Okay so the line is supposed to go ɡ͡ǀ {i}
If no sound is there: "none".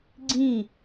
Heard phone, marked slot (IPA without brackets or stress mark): ĩ